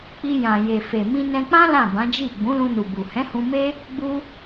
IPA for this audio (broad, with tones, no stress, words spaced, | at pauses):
k͡pi˧jã˨je˨ fe˨mĩ˧nɛ̃˧k͡pã˦ lã˦˨bã˨˦d͡ʒi˦˨ ɡ͡bũ˨˦lũ˧nu˨bu˨ hɛ̃˨˦hũ˧me˦ | ɡ͡bu˦